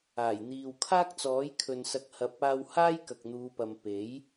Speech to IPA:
aː˨˩jn̪iː˨wkʰaː˥k̚t͡sɔː˨˥j kʰɵ˨nsɐ˨˥k̚hɐ˨˥p̚ aː˧whaː˥j kɐ˨k̚n̪uː˨˧pɐ˨m pe˨˥j

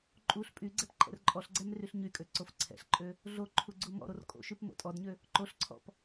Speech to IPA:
ǃʼuɬ pʼyɡ͡ǀɛp ǃʼɛ̰rǃʼɔɬɡ͡ǀɛm ryɬɲykʼø ǀofǀʰɛ̰ɬǃʼø | ɮoǃʰu ɡ͡ǀumɔ̰ɾor kʼo̰ʃyp mo̰tʼɔdɲø | ǃoɬǀʰɔ̰p

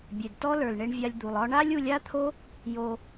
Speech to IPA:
bʲe˨dtɔ˦lə˞˨lɳe˧ɳ vʲa˧lʲd̪u˨lˠ ɒ˧ɳa˦lʲu˧lʲ a˦t̪ʰo˦ | jo˧

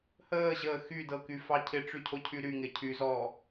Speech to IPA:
həːʑəː xydɤkyfɑ cʰɪʈ͡ʂycʰocʰy ɾyŋɪ cʰyzɔː

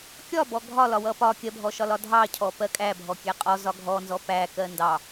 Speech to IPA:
kʲɒbɔ ɡʱɒlɒwʌ pɒ kʲɜbʱɔʃɒlɒ dʱɑcʰɔpɜ kʼæbʱɔkʲæ qʼɔzɒ ɡʱɔnzɔ pækɜ ndɑ

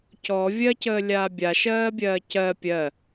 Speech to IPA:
cɔ vʲɜcəːlʲaː bʲaʃɜːbʲɜː cɜ pʲɜ

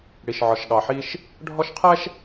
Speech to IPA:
ɽi˨ʃʕɒ˨ʃɠɑ˨ħi˦ʃ | ɖʱɔ˦ʃqʰɛ˦ʃ

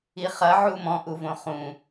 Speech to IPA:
iχɐ ʕumɔ̃ ʔuvõχũ

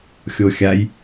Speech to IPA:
xʲoxʲaj

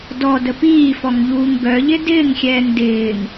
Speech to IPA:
dɔ dəpiːfɔŋ ʎuːŋɡœʎɪ dɪːŋxʲɛːŋ dɪːŋ

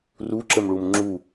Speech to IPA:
ru ǁəmɭumŋ͡ǁu

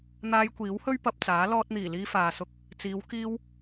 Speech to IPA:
n̪aː˧jkʷiː˨˥whɵ˥ɥ pɐ˧p̚t͡saː˨˥ lɔː˧t̚n̪iː˨˩liː˧ faː˨sʊ˧k̚ | t͡siː˨˧w kiː˧w

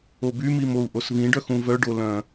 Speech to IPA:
obymim ou̯ʔosvĩɖœx ũvœɖo lœ̃

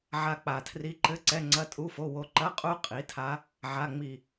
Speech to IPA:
ʕa˦˨k͡pa˨˩tʰri˦˥ ǃɘ˦˥ ǀɛ˧˥˧ŋ͡ǀɐ˧˥˧ tʼu˧˥˧fo˧˥˧wo˦˥ ǃɐ˧˥˧qʼu˦˥ qʼi˩˥tʰa˦˥ | ʕa˧˥˧ŋ͡mi˦˨

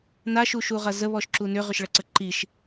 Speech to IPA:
naʃuʃuʁɐ zəβɔʃǁu nʏʁʏʃɭɐǀə ǃiʃ

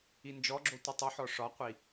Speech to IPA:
ind͡ʒɔɡ͡ǁo tʷɨtˤuħɔ ʂɒqʷi

